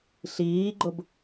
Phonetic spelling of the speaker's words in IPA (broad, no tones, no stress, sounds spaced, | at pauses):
ɬ iː ɡ͡ǃ ʊ b